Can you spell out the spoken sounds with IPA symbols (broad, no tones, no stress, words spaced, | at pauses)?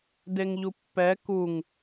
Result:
deŋʎupːɛ kuŋ